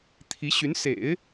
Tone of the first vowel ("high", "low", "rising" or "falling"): rising